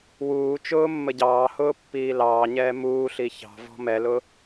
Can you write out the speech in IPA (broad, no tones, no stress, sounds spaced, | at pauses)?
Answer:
w uː t͡ʃ ʊː mː ə ɟ ɑː h ʊː pː iː l ɑː ɲ ɛː m uː ɬ i ç ɑ̤ v ɔ̤ m ɛ l ʊ